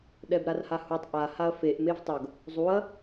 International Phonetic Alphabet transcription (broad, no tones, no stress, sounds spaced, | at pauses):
ɗ ɛ b ɾ a r h a h u tˤ ʔ a h a ɐ̯ f e ʔ m e v tˤ ʌ ɡ | zˤ u ɐ̯